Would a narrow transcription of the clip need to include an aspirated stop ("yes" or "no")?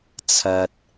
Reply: yes